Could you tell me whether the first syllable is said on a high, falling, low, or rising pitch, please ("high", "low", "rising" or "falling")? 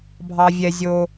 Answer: low